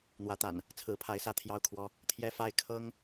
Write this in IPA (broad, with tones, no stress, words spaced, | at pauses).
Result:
n̪wä˨˦t̪a̰˨˩n | t͡sʰɹ̩˨˦pʰa˨˦ɪ̯sä˥˨ t̪ʰjɑ˥˨ʊ̯kʰwɔ˦ | t̪ʰjɛ˦fa˥˨ɪ̯ kʰɤ˦ŋ